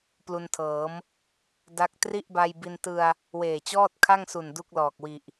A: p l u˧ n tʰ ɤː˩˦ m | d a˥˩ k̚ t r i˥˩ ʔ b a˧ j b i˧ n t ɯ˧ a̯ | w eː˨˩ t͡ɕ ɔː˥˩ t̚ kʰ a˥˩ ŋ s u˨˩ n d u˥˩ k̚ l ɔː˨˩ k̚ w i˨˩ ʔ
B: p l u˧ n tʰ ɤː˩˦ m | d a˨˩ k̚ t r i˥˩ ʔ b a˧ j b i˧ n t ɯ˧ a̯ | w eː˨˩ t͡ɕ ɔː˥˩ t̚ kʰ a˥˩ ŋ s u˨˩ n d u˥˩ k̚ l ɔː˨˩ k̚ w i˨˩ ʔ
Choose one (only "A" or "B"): A